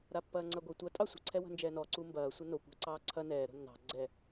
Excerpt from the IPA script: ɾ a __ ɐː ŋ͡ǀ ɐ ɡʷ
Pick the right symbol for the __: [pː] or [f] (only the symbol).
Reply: pː